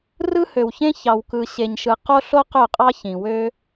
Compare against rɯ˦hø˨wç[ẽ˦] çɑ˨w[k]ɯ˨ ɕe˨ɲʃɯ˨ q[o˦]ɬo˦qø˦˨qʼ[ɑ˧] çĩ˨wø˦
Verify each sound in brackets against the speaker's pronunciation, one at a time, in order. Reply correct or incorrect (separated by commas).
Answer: correct, correct, correct, incorrect